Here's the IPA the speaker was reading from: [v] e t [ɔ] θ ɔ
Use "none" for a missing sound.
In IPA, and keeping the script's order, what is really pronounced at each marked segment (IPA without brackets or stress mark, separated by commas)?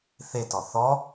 θ, ɔ